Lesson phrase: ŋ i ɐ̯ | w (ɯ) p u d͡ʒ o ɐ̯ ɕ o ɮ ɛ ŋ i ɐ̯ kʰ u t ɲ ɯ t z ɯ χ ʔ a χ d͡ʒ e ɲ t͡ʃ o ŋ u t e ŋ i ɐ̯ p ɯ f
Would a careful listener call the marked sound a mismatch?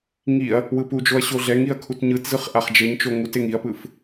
no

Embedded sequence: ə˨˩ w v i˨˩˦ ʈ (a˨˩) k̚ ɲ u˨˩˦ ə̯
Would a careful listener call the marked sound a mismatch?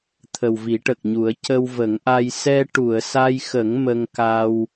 yes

